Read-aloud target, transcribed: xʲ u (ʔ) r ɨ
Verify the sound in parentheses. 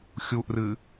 correct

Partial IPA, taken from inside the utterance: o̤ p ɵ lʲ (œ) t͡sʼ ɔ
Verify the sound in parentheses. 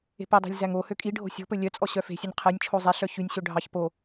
correct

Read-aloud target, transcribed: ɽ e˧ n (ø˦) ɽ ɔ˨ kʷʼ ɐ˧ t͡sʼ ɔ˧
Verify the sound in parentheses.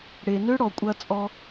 correct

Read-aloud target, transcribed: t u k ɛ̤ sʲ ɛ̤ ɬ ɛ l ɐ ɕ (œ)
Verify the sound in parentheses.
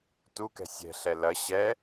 incorrect: ɛ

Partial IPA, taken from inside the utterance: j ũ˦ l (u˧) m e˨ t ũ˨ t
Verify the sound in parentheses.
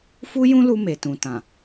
correct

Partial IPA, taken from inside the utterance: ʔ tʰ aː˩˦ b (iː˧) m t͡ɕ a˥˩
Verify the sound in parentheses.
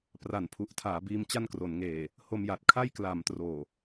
correct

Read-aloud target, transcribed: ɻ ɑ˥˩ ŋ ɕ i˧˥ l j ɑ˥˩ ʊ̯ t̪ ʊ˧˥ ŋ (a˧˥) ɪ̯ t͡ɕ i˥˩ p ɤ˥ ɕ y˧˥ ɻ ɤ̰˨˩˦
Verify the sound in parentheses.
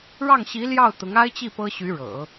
incorrect: a˥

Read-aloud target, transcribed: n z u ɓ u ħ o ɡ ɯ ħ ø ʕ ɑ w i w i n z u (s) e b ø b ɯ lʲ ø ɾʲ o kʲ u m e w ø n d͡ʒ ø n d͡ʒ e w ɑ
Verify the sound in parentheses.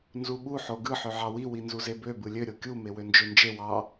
incorrect: z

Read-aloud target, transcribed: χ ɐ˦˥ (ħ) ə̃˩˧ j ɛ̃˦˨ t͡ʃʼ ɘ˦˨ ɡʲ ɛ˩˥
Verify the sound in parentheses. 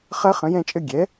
incorrect: χ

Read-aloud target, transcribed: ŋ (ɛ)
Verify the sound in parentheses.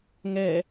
correct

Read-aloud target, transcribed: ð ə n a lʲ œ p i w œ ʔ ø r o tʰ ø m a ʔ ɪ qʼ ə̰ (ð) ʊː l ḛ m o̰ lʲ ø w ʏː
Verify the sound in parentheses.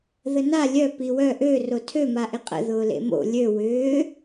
correct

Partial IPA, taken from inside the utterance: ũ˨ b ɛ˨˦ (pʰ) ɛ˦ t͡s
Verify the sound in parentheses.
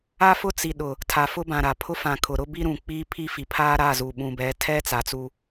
incorrect: tʰ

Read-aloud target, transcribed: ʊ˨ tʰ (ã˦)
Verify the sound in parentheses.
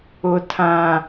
incorrect: ã˨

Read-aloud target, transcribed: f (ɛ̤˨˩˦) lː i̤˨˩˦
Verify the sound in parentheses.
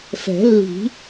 correct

